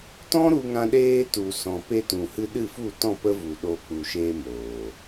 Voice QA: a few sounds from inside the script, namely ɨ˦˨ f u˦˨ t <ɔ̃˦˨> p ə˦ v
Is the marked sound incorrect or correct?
correct